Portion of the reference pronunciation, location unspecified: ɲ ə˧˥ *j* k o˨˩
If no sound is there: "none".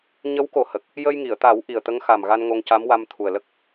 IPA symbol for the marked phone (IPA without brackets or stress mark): w